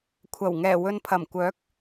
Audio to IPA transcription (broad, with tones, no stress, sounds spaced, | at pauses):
kʷʰ ɐ˨˩ w ŋ ɛː˨˩ w ɵ˨ n pʰ ɐ˨˩ m kʷ œː˨˥ k̚